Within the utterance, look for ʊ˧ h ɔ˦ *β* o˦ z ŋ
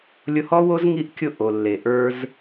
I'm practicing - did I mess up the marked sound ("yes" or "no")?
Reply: yes